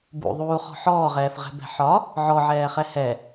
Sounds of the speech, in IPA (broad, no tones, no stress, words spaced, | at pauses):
bṵðˤuːχɔ̤ ħɔːʁɛːfʁɛ̤bɛ̤ ħɒ | ʕɔʕɛːχɛ hɛ